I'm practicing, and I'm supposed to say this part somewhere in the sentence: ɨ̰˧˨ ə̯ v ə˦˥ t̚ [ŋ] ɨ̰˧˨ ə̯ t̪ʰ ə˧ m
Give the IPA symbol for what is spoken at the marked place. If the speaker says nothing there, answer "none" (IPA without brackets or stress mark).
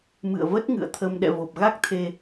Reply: ŋ